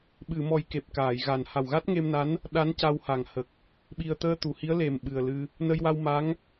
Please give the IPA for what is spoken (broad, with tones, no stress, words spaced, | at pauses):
ɓɨ˨˩˨mɔ˨˩j ke˨˩p̚kaː˨˩˨jɣa˨˩n ha˨˩wɣa˦˥t̚ŋe˧mna˧˥n | ɗa˧˥n ca˧wha˨˩ŋ hə˨˩k̚ | ɓi˨˩ə̯t̪əː˧t̪u˨˩˨hi˧˥ə̯ le˨˩m ɓɨ˨˩ə̯lɨ˧ | nə˧jwa˧wma˧˥ŋ